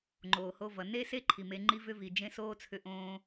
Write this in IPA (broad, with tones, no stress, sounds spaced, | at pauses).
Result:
ŋ͡ǃ oː˨ h o˧ v ʌ˨ n e˦ s e˦ ǃʰ i˨ m e˧ ŋ͡ǃ i˦ v ʏ˦ v i˨ d͡ʒ ẽ˦ s oː˦ t͡sʰ ʏ˧ ʔ õː˧